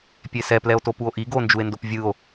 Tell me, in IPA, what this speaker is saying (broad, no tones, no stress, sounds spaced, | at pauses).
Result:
pʲ e s ɛ p l ɛ o̯ t o p u o̯ ʔ i ɡ o n d͡ʒ u e̯ n d o p vʲ ɯ o̯